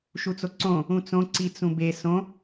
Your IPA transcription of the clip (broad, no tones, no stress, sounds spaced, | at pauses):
ʃ u t͡s o ǀ õ | ũ t͡s õ ǀ i t͡s ũ b e s õ